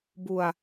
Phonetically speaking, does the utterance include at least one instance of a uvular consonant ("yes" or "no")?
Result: no